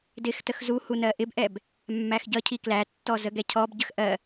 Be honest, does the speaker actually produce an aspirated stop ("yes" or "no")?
yes